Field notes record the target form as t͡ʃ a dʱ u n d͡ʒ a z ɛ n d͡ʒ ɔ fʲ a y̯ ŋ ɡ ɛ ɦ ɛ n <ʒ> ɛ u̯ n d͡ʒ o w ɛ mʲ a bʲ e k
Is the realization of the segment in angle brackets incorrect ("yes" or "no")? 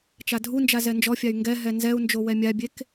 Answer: yes